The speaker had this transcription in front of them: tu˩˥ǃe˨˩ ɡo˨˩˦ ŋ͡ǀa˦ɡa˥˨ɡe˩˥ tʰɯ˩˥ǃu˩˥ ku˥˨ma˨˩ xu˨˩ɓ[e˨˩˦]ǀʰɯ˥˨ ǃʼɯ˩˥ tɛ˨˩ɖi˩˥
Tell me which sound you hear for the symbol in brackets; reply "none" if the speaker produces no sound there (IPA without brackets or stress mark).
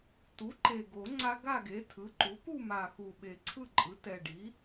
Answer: e˨˩˦